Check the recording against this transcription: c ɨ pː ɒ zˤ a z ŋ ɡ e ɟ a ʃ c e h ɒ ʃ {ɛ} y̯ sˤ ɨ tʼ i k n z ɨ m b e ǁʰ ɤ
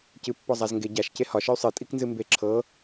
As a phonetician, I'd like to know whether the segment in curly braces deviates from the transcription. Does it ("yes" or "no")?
yes